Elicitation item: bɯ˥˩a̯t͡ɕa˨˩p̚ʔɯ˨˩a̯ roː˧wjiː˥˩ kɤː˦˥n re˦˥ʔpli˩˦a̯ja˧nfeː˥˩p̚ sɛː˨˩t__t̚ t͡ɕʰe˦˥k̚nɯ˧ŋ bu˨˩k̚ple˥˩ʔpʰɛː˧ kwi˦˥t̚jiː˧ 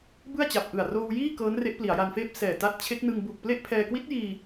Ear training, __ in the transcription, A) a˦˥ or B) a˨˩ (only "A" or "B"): A